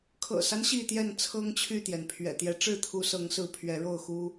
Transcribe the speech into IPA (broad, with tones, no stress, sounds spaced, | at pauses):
kʰ ɤ̰˨˩ s a˦ n ɕ i˥˨ t̪ j ɛ˥˨ n t͡sʰ ɤ˦ ŋ t͡ɕʰ y˥˨ t̪ j ɛ˩ n pʰ ɥ ɛ̰˨˩ t̪ j ɛ˨˦ ʈ͡ʂ ɻ̩˥˨ t̪ʰ u˨˦ s ɤ˨˦ ŋ s ɹ̩˨˦ pʰ ɥ ɛ˨˦ ɻ o˥˨ ʊ̯ x u˦